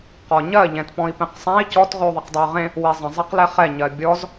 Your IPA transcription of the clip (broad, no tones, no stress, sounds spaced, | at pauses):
q ɔ ɲ ɜ ʎ ɛ̃ t p ɔ̃ i̯ p ẽ q sˤ ɛ̃ i̯ c ɔ t ʁ ʉ u̯ ðˤ e q dˤ e y̯ ʁ ẽ | w e zˤ ə̃ zˤ e q l ɛ χ ɛ ɲ ɜ bʲ ɔ z